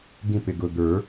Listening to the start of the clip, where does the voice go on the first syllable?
falling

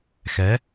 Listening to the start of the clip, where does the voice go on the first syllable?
rising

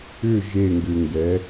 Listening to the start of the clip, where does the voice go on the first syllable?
falling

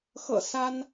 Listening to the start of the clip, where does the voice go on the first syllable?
low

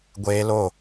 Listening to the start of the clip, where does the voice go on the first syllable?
high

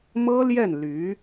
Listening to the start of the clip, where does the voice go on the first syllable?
high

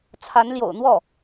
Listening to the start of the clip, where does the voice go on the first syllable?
rising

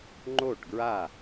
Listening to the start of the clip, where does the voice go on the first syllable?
falling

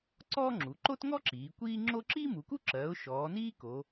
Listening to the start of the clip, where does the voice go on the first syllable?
high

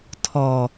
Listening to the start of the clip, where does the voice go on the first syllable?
low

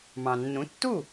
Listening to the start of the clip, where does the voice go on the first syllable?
low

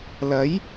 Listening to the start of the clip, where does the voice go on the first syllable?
rising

